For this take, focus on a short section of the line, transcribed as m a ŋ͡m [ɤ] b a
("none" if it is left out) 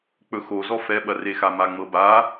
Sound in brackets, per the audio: ɤ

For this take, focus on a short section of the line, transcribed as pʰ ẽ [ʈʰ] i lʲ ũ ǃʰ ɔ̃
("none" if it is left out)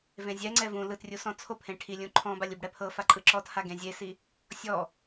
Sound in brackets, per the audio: ʈʰ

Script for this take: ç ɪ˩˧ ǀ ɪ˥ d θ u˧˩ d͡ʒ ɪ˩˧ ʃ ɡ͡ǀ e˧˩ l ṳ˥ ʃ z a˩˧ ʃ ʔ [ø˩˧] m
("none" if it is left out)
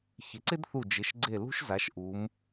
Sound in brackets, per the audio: u˩˧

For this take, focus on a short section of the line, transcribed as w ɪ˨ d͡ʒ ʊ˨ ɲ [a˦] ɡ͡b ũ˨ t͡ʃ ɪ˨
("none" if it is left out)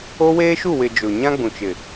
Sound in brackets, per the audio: ã˦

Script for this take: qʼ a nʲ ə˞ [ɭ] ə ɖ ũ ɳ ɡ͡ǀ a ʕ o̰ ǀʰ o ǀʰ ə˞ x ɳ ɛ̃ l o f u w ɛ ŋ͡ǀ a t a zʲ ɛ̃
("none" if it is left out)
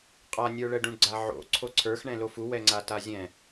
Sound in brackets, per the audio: ɭ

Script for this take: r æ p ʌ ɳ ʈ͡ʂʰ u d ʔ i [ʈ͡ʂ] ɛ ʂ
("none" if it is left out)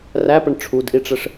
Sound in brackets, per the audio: ʈ͡ʂ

